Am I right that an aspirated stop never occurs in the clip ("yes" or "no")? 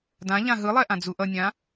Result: yes